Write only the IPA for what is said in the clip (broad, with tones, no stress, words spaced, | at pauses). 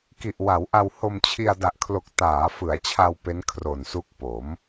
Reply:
ki˨˩ʔ wa˩˦wʔa˧w ho˧mt͡ɕʰi˧a̯ da˨˩ʔkʰlo˨˩k̚ taː˩˦fɯ˩˦a̯t͡ɕʰa˧w pe˦˥nkʰro˨˩nsu˦˥k̚ po˩˦m